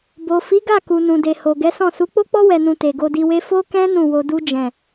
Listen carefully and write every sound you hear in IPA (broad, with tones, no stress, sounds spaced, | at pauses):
b o˨ f i˨˦ ɡ a˦˨ k u˨ n ũ˨ d e˨ h o˨ ɡ ɛ˨˦ s ɔ̃˦˨ s u˨˦ k͡p o˦ k͡p ɔ˦ w ɛ˧ n ũ˧ t e˨ ɡ o˧ d i˧ w e˦ f o˦ k ɛ̃˦ n ũ˦˨ w o˧ d u˦ d͡ʒ ɛ̃˦˨